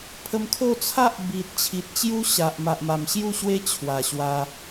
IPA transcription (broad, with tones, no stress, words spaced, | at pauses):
pʰə˧mkʰo˥˧ t͡sʰa˦ʔbi˨t̚ t͡ɕʰi˨t̚t͡ɕju˦ɕa˨ʔ ma˨ʔma˨˩mɕju˥˧ɕwe˦ t͡ɕʰwa˨˩ɕwa˧